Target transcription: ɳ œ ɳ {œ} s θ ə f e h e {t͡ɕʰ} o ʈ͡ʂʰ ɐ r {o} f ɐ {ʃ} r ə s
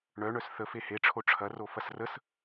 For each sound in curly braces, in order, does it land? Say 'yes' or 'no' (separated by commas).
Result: yes, no, yes, no